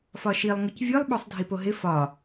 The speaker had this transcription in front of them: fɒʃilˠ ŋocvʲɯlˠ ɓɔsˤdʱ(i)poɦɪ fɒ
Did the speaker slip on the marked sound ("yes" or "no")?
no